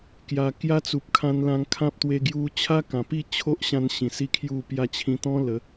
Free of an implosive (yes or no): yes